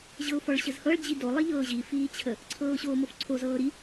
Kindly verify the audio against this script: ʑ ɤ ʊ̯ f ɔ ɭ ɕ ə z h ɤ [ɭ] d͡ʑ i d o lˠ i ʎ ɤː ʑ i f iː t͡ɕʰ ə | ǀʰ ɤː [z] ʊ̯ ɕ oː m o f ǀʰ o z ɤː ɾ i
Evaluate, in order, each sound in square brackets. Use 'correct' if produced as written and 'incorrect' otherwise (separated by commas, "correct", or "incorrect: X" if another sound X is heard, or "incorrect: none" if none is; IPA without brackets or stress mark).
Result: correct, incorrect: none